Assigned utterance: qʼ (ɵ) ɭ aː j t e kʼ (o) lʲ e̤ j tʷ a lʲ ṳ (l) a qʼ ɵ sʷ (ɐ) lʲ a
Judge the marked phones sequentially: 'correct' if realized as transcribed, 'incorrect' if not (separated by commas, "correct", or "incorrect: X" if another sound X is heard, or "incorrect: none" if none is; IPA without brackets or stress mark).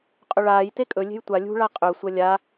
correct, incorrect: ɵ, incorrect: ɭ, correct